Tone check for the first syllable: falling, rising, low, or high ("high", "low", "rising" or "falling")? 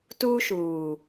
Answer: high